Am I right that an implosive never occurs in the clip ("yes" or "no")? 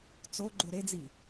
yes